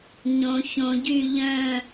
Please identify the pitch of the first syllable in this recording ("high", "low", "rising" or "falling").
low